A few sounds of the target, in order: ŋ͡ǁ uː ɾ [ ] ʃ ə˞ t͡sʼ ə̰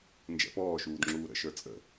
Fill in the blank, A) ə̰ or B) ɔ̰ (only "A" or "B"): A